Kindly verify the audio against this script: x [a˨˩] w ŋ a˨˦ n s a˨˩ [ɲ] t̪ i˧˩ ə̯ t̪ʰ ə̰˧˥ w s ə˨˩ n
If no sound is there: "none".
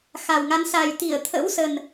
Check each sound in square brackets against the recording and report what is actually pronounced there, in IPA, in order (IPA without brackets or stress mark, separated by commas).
a˨˩, j